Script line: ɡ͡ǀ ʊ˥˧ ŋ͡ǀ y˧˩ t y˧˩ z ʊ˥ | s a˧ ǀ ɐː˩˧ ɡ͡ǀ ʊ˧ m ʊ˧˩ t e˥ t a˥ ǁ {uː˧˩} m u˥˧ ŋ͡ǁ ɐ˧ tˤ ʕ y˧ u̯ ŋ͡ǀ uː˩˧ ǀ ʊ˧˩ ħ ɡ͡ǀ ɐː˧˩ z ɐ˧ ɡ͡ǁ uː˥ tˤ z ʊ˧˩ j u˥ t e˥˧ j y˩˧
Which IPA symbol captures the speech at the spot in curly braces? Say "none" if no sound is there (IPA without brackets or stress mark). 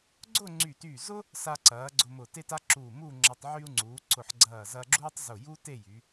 uː˧˩